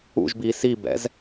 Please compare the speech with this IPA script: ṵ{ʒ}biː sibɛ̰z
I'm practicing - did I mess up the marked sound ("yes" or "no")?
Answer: no